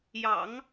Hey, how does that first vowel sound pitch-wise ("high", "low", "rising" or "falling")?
low